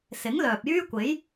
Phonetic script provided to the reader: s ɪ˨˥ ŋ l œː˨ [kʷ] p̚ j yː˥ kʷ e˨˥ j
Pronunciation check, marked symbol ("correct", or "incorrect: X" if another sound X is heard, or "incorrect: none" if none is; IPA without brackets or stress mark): incorrect: none